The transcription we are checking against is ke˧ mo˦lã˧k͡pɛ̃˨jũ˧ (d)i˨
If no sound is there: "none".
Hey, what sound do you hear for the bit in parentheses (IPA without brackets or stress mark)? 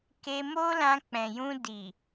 d